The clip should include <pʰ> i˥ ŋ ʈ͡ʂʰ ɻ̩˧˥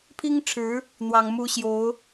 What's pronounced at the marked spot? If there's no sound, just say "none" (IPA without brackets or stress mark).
pʰ